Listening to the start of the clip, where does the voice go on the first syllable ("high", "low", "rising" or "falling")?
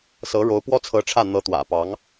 rising